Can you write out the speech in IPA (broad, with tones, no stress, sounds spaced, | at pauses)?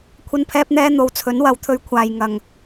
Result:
kʷʰ ɐ˧ n pʰ ɛː˧ p̚ n̪ ɛː˧ n̪ o˨˧ w t͡sʰ ɵ˨˥ n w ɐ˨˥ w t̪ʰ ɵ˧ ɥ kʷʰ aː˨ j ŋ ɐ˨ ŋ